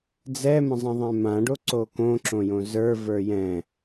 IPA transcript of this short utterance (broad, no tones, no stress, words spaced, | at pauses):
d͡zɛmə̃zˤə̃ðˤɛ̃ mãɖoǀo kõǁõjõ zə˞və˞ jɛ̃